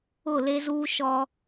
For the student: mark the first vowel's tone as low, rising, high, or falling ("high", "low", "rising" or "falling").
falling